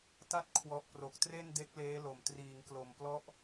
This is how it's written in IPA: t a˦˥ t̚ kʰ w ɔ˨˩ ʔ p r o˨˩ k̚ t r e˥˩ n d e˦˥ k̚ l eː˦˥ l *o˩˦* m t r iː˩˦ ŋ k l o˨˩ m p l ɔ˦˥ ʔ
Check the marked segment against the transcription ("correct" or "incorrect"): incorrect